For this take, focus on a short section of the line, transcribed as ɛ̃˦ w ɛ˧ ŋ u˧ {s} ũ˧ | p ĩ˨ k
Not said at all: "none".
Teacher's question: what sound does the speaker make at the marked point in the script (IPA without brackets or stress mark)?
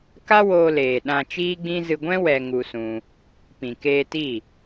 s